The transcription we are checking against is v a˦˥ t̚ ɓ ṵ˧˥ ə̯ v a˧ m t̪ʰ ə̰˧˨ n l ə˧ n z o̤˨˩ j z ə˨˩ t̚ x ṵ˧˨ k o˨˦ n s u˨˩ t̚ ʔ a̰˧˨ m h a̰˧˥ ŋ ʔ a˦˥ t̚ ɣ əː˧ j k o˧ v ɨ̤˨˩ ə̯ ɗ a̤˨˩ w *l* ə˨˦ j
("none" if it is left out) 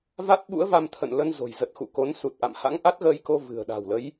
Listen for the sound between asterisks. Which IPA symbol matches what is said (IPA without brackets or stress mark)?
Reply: l